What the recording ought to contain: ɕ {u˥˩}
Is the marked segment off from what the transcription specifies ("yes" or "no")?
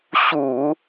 yes